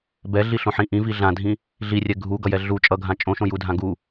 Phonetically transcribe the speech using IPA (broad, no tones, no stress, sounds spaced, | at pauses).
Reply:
b ɛ ɮ i ɬ õ ħ ĩ ʔ ĩ v i ɮ ã dʱ ĩ | ɮ i rʲ ɛ ɡʱ u ɡ ʌ j ɛ ɮ u t͡ʃʼ ʌ ɡʱ ã t͡ʃʼ õ ʃ õ j u dʱ ã ɡ u